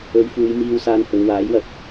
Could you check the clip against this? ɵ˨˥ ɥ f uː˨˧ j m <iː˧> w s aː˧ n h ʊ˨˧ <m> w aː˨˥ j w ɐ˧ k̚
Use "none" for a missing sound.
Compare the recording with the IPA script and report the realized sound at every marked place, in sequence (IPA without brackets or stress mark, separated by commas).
iː˧, ŋ